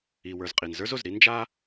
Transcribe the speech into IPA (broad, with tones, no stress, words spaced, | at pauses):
i˩wə˞˩z qʼi˩nzə˞˥zo˩z ɾi˥nd͡ʒa˥